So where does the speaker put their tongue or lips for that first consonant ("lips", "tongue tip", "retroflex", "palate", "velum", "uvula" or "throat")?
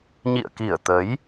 palate